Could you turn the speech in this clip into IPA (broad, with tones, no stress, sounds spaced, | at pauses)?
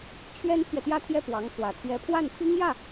t͡ɕʰ ɥ ɛ˥ n pʰ ɥ ɛ˨ t̪ j ä˥˧ t̪ʰ j ɛ˥˩ p w ɑ˧˥ ŋ t͡s w ä˨˩ t̪ʰ ɥ ɛ˧˥ pʰ w a˥˩ n t̪ʰ i˥ ŋ j ä˥˩